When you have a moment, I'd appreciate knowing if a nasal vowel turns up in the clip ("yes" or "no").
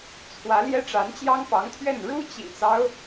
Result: no